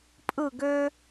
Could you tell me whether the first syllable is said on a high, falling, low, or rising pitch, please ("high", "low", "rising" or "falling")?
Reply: falling